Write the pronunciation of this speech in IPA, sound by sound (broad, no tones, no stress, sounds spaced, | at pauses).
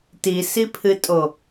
t i s i pʰ ɨ tʼ o